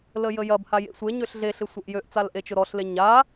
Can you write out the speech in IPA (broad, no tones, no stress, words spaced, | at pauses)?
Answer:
ləjəjɐb hajḛsʷe ɲøɬɮe ɬɪsʷəʔjøʔ t͡salʔet͡ʃʊɾɔɬ leɲa